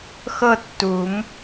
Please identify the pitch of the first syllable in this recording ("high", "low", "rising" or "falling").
falling